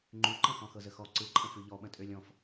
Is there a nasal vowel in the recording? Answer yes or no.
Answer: yes